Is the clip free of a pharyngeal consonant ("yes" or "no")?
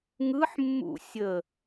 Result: no